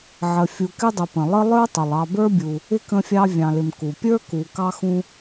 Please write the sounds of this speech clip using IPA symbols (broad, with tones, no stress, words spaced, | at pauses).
ʕə˨ fʲu˨kɪ˥dˤə˨pə̃˩ lˠə˥ lˠə˞˥tˤɪ˩lˠ ɑ˨bə˞˦bʲu˩ | ɪ˥kə̃˦fʲɑ˦ vʲɑ̃˩lɪ˩m ku˩pʲə˞˦ ku˨ kɑ˦xũ˦